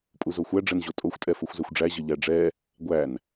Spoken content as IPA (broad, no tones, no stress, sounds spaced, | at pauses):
pʼ u z o xʷ æ ɖ͡ʐ ɛ n ʑ o tʼ o xʷ tʼ ɛ f o xʷ z ɛ xʷ ɖ͡ʐ æ ʑ ə ʎ æ ɖ͡ʐ ɛ | ɡʷ æ n